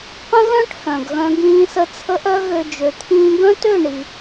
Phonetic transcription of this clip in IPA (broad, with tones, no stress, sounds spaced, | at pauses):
q ə̃˦ ɣ œ̃˦ ʈ h œ̃˨ ɡ ɣ œ̃˧ ɡ ĩː˧ s ə˧ t͡sʰ ə˦ ʔ œ˦ ɣ ø˧ d͡ʒ ø˨ t̪ʰ ĩː˧ ɡ œ̃˦ t ø˦˨ ɳ i˨